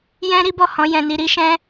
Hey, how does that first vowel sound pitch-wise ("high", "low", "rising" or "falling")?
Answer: high